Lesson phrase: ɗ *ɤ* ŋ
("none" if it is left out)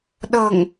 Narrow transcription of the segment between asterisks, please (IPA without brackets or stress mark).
ɤ